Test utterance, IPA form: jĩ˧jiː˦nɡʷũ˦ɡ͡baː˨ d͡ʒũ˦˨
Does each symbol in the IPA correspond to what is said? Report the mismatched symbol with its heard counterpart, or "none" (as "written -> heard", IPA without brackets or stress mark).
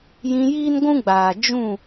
none